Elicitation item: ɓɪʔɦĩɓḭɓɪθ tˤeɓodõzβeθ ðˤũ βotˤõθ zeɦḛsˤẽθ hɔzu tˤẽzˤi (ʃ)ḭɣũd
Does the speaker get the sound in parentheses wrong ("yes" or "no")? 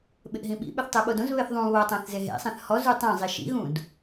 no